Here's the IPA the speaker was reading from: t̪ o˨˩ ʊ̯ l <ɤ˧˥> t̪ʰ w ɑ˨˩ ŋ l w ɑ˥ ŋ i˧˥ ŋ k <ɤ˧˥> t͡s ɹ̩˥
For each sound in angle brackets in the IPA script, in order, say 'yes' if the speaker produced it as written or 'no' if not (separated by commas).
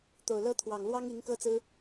no, no